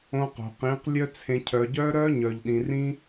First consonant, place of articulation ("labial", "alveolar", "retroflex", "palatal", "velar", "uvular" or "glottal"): uvular